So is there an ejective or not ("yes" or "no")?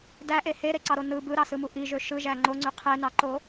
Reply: no